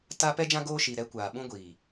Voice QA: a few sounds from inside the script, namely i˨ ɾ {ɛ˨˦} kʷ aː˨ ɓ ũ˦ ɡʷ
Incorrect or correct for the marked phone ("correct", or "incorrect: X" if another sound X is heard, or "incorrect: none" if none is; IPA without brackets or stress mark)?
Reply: correct